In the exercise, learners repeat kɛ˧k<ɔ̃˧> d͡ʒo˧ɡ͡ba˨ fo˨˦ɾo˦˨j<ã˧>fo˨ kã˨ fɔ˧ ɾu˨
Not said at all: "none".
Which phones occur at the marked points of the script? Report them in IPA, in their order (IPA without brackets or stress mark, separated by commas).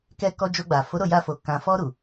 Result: ɔ˧, a˧